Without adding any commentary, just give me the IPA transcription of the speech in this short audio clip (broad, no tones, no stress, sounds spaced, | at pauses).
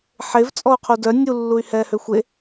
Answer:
ħ e v t͡sʼ ɔ u̯ qʰ u d œ nʲ u lː u y̯ h ɛː h ø xʷ e